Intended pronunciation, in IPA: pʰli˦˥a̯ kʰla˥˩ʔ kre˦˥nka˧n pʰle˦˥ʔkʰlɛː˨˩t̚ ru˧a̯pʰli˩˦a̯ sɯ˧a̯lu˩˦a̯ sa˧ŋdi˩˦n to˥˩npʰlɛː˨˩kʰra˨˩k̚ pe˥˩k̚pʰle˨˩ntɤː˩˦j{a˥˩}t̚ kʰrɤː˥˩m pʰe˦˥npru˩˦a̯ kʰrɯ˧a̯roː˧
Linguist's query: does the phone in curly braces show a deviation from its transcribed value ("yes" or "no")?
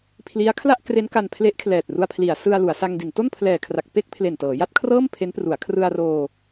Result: no